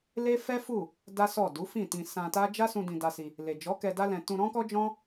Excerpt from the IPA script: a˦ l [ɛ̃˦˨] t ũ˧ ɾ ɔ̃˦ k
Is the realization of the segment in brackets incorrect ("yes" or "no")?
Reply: yes